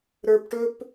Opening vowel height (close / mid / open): mid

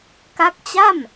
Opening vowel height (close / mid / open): open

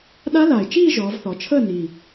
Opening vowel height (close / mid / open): open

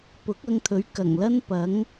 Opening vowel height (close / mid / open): close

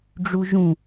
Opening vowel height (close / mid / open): close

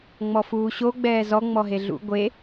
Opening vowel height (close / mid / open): mid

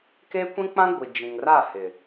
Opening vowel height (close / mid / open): mid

